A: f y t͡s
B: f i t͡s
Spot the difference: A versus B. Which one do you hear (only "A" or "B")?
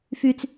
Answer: A